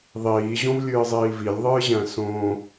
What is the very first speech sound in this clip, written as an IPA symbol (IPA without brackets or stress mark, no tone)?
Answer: ðˤ